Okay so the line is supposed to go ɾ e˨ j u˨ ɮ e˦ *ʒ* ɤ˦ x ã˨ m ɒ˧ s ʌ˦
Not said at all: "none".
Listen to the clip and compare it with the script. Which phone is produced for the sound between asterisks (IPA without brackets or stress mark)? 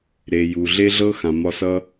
ɮ